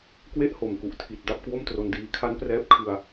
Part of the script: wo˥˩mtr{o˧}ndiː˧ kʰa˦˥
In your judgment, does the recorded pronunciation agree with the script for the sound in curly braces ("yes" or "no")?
yes